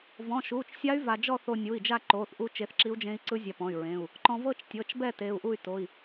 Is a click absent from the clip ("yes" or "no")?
no